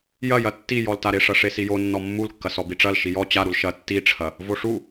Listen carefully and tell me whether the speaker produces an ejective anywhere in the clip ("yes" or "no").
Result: no